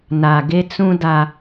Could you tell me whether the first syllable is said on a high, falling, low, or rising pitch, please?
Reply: low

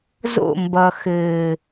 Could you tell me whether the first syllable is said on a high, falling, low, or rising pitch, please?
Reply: falling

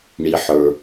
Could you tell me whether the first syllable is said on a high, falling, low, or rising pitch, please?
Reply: low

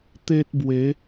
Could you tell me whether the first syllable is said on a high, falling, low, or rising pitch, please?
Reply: high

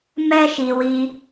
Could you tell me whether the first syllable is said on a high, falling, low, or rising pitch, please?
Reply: high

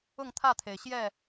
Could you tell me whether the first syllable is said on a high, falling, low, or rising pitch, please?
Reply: falling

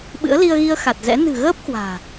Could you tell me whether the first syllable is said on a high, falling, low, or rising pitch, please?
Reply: rising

